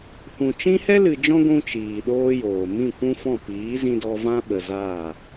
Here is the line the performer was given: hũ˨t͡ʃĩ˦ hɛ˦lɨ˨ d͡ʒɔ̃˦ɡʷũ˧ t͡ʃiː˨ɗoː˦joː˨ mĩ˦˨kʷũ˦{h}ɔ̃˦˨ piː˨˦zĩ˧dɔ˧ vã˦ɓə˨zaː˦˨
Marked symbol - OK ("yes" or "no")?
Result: no